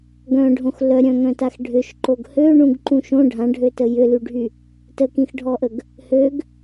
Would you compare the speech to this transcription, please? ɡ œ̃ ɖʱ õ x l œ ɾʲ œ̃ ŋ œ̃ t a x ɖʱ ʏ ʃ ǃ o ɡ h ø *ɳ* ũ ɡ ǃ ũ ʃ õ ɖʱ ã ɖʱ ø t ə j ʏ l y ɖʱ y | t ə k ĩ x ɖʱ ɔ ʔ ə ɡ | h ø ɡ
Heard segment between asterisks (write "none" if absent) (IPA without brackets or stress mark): ɳ